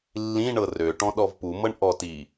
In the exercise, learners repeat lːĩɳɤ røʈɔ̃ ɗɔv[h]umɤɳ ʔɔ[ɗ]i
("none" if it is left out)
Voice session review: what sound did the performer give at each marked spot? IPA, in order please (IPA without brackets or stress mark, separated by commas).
p, t